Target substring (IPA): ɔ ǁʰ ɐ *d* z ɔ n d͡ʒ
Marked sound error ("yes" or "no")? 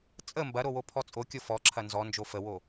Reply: yes